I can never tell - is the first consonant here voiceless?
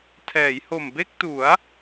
yes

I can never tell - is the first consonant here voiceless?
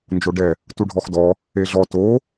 no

